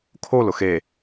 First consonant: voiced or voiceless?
voiceless